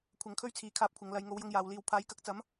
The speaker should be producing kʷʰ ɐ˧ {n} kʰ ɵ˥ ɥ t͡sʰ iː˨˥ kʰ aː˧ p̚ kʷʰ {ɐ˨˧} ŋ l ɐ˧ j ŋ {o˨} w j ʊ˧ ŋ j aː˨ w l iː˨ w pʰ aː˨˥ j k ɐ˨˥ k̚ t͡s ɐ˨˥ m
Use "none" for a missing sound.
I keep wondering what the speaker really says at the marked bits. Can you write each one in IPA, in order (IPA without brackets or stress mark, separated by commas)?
ŋ, ɐ˨˧, o˨˧